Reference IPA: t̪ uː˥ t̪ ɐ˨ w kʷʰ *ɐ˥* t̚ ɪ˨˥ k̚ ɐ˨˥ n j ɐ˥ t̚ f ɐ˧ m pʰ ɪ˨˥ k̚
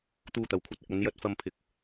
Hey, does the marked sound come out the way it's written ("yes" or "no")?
yes